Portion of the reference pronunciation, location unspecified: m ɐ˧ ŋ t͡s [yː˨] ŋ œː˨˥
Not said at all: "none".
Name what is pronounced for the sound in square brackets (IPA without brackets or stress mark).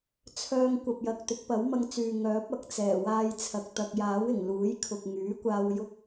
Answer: yː˨